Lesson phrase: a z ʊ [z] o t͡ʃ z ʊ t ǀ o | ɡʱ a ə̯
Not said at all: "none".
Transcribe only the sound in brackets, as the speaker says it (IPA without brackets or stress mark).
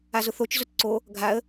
θ